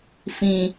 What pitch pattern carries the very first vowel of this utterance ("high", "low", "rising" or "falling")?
low